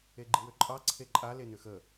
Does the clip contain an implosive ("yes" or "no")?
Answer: no